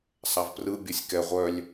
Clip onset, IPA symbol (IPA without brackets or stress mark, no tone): sˤ